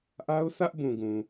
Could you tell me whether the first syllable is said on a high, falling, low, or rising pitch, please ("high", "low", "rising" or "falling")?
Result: high